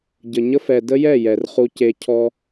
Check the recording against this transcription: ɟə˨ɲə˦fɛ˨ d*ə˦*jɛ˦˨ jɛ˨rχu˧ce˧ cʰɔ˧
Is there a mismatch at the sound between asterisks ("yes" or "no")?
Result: no